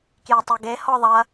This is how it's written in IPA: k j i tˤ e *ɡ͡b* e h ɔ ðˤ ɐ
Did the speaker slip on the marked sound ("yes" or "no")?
yes